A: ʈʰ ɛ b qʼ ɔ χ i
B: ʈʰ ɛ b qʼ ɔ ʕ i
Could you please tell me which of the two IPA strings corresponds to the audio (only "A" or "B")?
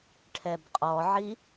B